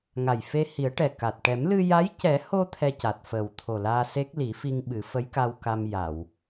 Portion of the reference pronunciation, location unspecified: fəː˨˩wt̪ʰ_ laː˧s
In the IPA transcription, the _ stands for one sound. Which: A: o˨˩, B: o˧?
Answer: A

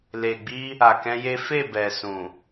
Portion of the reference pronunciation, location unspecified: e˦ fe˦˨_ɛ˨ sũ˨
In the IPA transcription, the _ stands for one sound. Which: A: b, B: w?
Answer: A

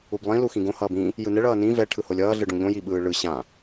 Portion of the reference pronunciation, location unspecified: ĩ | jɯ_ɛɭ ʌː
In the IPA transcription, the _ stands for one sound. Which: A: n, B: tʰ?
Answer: A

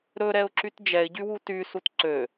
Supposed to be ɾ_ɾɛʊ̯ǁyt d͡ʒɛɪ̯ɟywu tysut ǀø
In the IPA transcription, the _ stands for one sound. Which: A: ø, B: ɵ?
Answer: B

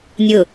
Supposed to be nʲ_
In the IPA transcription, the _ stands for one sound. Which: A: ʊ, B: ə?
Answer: A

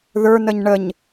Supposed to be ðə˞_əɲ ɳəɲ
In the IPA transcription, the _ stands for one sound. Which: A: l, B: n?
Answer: B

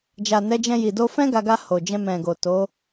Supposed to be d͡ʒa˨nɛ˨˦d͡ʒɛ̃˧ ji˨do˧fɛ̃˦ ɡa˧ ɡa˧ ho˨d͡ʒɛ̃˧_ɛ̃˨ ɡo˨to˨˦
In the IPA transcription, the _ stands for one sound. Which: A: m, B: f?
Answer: A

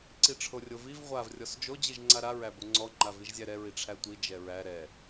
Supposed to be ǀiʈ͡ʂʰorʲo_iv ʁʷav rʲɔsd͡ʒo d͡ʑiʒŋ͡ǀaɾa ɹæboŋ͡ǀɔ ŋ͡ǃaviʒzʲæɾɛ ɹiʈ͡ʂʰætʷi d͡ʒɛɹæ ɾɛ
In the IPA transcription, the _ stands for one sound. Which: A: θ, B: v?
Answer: B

